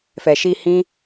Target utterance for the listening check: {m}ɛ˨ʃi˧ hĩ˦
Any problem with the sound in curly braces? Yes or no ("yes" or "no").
yes